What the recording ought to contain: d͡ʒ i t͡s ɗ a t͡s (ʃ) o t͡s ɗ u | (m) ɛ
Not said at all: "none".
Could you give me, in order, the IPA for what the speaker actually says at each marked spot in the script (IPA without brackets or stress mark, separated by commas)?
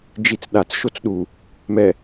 ʃ, m